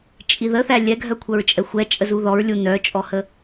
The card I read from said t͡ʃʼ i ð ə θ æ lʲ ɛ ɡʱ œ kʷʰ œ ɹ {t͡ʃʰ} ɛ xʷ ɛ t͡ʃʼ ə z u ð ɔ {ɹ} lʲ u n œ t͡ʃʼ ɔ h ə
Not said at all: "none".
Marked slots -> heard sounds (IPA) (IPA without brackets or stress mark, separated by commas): t͡ʃʼ, ɹ